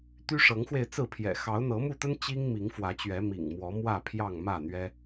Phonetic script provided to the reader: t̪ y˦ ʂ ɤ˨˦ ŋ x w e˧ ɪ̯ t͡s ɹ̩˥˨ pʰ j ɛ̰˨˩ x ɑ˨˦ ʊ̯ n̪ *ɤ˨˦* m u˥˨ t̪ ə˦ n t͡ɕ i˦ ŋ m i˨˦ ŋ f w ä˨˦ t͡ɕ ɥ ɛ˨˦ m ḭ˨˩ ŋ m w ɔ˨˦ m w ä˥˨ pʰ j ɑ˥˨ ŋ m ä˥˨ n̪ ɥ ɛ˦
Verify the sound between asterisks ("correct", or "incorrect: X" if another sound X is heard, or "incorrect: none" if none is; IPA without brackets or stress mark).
correct